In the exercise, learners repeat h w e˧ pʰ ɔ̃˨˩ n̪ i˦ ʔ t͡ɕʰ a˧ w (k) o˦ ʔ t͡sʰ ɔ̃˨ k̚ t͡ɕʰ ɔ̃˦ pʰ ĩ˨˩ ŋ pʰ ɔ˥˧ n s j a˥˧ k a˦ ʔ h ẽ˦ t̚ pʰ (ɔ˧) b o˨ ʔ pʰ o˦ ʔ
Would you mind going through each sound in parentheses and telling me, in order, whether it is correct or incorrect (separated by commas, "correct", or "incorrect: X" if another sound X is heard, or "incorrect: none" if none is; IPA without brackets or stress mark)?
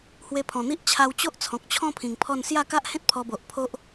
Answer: incorrect: t͡ɕ, correct